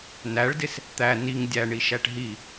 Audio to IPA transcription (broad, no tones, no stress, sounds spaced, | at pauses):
n æ ɭ d ɪ s | t̪ æ n i ŋ dʲ æ ɳ i ʃ æ ʈ ɦ i